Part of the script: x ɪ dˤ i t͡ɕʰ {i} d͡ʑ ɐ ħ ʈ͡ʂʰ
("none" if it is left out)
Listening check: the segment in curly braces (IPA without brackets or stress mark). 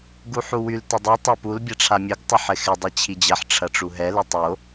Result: i